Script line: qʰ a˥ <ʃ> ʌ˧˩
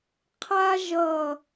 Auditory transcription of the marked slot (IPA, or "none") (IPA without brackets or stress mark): ʒ